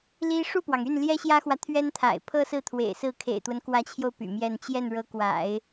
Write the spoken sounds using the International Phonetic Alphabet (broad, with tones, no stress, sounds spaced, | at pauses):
l i˥ ʂ u˥˩ p w ɑ˩ ŋ y˥˩ n l j ɛ˥ ɕ j ä˥ x w ä˨ t̪ʰ ɥ ɛ˥ n t̪ʰ a̰˨˩ ɪ̯ pʰ ɤ˥ s ɹ̩˥˩ t̪ʰ w ḛ˨˩ ɪ̯ s ɹ̩˥˩ kʰ ḛ˨˩ ɪ̯ t̪ w ə˦ n k w ä˧˥ t͡ɕʰ j o˧ ʊ̯ p y̰˨˩ m j ɛ˥˧ n t͡ɕ j ɛ˥˩ n ɻ ɤ˧˥ k w a̰˨˩˦ ɪ̯